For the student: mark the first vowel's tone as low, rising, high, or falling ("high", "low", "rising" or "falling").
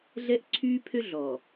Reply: high